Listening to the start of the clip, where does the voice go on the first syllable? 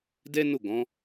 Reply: high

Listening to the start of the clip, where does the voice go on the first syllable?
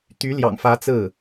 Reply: rising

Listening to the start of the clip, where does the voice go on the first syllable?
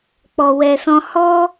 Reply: low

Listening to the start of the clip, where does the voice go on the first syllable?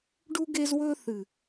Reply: high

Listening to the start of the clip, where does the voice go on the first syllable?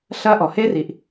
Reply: high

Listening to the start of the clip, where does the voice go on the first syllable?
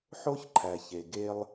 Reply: high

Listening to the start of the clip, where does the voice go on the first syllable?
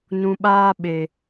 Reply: low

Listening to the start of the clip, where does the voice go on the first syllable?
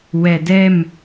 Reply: low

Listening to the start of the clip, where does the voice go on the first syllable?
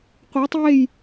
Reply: rising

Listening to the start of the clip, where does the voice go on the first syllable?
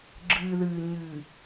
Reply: low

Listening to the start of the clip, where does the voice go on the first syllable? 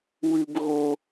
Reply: high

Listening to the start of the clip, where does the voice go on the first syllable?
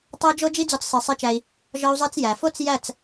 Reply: high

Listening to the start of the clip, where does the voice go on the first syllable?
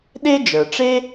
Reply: high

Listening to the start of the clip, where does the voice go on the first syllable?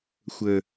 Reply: low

